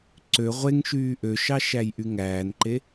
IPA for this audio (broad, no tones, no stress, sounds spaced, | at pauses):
ǀ ø ʁʷ e ŋ ʃ yː ʔ ø ʃ ɑ ʃ æ j ʔ y ŋ æː n ǃ e